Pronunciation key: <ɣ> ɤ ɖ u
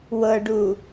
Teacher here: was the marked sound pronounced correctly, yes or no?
no